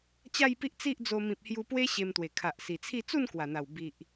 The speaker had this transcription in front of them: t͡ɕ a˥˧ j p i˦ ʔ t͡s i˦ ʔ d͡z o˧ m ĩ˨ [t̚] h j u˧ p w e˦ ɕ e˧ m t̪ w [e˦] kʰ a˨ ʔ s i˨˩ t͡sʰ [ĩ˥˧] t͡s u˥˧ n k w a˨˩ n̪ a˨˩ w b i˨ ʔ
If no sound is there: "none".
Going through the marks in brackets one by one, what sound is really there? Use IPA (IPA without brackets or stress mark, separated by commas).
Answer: p̚, e˨˩, i˥˧